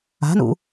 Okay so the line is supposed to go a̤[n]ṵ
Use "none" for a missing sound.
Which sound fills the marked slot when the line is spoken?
n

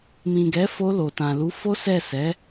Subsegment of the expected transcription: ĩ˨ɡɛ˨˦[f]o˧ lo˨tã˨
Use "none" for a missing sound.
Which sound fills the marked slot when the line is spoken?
f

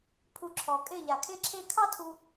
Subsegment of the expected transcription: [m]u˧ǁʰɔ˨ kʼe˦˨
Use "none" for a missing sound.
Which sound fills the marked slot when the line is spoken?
pʰ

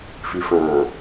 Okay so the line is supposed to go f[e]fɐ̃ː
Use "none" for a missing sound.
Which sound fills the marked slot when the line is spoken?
i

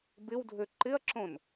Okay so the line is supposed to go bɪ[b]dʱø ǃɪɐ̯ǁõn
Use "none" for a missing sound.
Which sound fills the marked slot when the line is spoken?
w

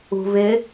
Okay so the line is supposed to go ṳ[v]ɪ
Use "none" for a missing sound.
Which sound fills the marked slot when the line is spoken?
v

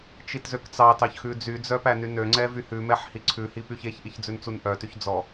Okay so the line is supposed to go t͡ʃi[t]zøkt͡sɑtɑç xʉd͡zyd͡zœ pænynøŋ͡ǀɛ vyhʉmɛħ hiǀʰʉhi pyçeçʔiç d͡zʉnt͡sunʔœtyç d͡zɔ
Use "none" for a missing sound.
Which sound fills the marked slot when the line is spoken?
t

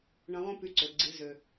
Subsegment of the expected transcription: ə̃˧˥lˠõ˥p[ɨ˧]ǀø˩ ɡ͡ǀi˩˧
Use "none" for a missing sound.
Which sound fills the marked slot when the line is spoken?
y˧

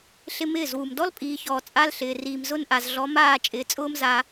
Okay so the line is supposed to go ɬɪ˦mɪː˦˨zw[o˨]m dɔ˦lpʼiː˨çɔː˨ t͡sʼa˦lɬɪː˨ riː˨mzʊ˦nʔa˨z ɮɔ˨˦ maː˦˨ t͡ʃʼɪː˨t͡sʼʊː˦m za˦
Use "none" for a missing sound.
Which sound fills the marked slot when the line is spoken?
u˨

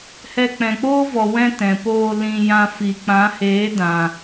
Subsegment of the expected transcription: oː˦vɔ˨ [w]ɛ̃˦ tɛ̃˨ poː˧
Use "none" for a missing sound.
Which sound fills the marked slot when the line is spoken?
w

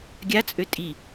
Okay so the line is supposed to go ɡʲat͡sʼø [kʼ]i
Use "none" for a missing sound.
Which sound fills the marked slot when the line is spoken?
tʼ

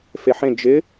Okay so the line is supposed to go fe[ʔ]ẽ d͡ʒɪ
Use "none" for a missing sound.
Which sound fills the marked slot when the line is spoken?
ħ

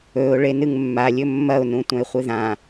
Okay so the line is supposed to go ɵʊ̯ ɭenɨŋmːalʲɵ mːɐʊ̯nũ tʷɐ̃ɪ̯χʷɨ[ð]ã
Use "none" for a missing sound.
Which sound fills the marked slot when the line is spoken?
ð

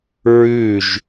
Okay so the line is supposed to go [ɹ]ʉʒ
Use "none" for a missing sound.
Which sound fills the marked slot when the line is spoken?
ɹ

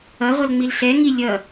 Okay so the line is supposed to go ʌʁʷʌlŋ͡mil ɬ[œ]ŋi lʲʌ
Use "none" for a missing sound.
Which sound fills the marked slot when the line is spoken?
ɛ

